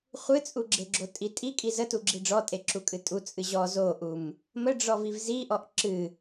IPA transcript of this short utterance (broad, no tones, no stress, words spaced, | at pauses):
χʷɨt͡sʼuɡ͡ǁeɡ͡ǁo tʼitʼikʼi zətuɡ͡ǁi ɖ͡ʐɔtʼeǁukʼɨ tʼut͡sʼɨ ʑɔ zoʔum | məɖ͡ʐɔviv ziʔɔʔ ǁɨ